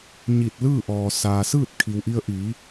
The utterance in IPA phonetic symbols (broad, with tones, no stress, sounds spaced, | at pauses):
ɲ i˧˩ t̚ l ɯː˥˨ ʔ ɔː˩ s aː˩ s ɯː˥˨ t̚ kʰ i˩ w ʔ i˧ ə̯ ʔ iː˩˧